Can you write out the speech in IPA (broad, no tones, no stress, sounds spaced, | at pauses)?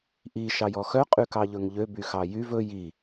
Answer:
ʔ i ʃ ɑ j ɔ x œ qʼ y k ɑ ʎ ɵ ŋ ʎ ø b y x ɑ j y v ɵ j i